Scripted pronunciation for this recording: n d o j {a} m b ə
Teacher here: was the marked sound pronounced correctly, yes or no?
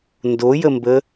no